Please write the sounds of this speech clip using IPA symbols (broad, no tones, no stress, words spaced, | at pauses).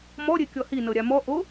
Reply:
mɔɾʲe kʲɔhi nɤɾʲamɔ ʔo